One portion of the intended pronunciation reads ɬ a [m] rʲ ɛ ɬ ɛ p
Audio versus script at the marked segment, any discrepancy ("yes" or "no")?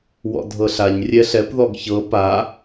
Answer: yes